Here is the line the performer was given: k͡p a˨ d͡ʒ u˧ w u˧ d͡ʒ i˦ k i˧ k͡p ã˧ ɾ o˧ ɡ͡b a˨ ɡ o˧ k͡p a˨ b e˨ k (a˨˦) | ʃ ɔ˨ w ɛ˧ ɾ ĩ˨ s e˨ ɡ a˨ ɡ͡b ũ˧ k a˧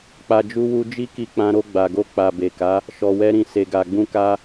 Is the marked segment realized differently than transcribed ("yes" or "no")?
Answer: no